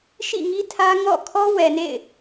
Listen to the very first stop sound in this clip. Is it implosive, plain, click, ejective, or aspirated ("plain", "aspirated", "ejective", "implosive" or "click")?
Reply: aspirated